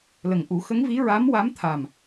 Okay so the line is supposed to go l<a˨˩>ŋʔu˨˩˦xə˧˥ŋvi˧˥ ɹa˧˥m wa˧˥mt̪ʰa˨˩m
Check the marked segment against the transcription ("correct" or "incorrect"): incorrect